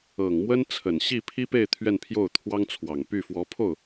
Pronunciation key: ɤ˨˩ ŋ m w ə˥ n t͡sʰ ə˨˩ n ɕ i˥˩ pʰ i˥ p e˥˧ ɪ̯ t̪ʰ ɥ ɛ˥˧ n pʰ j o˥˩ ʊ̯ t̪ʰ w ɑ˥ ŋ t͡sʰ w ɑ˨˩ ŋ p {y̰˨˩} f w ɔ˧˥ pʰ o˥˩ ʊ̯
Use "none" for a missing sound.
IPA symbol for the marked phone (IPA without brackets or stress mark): y˥˩